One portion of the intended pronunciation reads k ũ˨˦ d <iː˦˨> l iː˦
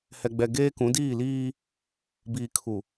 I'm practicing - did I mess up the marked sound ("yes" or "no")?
no